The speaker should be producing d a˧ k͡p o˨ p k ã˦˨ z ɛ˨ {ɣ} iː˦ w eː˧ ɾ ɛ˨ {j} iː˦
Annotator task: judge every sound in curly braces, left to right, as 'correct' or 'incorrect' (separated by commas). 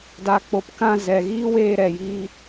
correct, correct